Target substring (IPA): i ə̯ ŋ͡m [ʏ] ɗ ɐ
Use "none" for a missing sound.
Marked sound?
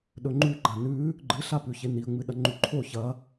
ɨ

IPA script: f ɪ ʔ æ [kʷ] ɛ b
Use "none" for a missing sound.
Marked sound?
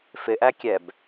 kʲ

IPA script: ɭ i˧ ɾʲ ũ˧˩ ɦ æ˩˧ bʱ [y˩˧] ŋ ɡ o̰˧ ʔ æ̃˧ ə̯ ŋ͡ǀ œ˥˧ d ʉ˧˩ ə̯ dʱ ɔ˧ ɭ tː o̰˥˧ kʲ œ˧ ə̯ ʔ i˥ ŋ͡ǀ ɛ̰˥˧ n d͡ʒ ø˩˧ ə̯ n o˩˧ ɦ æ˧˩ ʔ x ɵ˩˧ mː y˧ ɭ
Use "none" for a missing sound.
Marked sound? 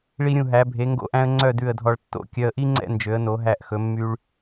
e˩˧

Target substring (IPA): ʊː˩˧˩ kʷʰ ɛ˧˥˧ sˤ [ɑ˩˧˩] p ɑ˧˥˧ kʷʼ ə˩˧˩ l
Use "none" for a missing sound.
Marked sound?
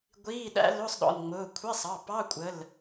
ɑ˩˧˩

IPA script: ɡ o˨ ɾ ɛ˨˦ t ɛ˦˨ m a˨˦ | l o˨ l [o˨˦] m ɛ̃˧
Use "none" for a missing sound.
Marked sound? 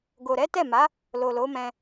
o˨˦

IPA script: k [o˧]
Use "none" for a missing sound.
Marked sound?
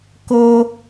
o˧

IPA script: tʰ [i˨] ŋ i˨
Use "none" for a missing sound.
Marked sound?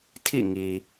ḭ˦˨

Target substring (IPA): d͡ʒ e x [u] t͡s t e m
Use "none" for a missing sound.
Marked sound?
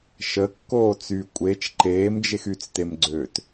y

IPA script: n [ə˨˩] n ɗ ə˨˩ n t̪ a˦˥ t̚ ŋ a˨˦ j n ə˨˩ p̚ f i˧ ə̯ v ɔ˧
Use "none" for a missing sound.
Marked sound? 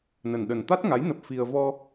ə˨˩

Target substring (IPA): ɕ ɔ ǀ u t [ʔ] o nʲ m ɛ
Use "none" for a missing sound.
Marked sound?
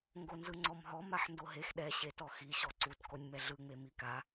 k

